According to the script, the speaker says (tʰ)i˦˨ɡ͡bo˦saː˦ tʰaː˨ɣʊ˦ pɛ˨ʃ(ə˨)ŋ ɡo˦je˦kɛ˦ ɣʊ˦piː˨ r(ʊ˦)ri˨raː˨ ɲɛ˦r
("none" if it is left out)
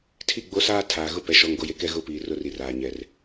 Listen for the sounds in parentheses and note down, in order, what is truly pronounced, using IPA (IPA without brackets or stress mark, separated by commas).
tʰ, ɔ˨, ʊ˦